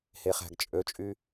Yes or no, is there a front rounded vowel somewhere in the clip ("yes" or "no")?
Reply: yes